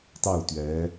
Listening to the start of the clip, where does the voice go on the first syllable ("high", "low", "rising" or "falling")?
falling